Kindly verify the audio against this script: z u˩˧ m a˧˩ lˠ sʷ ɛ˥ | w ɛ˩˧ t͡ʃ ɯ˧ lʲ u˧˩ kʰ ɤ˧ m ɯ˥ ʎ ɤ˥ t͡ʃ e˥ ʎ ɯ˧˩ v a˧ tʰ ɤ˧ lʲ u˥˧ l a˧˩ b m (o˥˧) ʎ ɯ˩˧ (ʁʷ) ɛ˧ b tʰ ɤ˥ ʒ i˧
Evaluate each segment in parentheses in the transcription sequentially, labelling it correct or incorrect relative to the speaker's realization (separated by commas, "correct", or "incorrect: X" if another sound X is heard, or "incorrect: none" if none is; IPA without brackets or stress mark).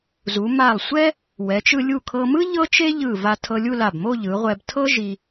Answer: correct, correct